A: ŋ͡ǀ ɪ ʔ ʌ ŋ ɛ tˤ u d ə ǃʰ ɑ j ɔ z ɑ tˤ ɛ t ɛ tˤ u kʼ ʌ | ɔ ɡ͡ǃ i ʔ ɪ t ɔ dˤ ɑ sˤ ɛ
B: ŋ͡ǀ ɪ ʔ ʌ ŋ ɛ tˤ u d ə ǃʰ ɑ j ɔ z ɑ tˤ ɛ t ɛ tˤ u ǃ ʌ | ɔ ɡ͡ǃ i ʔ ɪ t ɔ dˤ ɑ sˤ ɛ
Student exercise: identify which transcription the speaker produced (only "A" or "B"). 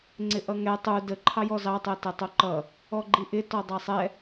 B